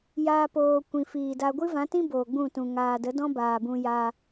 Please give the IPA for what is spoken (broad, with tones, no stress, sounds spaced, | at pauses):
j aː˦ p oː˧ kʷ ĩ˨ f iː˨ d a˧ ɡʷ ɨ˦ v ã˨˦ t ĩ˦ b oː˨ ɡ͡b ũ˦˨ t ũ˨ ŋ aː˨ d ə˨˦ d ɔ̃˦ b aː˨ b ũ˧ j a˧